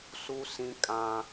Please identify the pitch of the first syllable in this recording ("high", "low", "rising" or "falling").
high